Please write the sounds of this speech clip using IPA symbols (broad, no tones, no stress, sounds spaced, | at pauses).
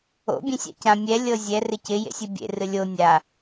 o̰ bʲ ẽ sʲ a̰ c ã mʲ ɛ lʲ ɤ zʲ ɛ r ɪ c ɪ j ḛ sʲ ɨ bʲ ḛ r ɨ lʲ o nʲ a